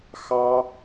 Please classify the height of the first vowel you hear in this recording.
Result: low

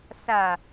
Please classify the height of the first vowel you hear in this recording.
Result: low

